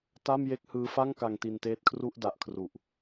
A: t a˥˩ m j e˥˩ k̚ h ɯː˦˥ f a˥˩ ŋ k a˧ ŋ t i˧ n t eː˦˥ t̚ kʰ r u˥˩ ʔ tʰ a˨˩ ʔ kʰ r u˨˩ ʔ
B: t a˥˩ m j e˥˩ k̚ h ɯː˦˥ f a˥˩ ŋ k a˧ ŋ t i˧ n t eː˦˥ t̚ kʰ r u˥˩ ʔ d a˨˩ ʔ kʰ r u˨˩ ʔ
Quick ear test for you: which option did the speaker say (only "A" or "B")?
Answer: B